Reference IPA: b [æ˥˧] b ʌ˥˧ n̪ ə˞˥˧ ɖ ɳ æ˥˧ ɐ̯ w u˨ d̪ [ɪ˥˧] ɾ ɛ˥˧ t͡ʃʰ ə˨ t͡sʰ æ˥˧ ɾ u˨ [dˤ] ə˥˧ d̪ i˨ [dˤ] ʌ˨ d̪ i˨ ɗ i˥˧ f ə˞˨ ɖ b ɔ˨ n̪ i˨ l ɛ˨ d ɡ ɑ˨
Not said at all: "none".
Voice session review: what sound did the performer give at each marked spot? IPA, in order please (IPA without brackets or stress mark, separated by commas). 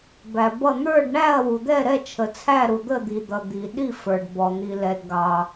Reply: æ˨, ɛ˥˧, d̪, d̪